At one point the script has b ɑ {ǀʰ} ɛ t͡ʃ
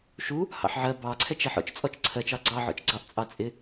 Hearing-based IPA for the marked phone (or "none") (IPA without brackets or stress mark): ǀʰ